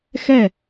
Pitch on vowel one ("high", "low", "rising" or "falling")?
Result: falling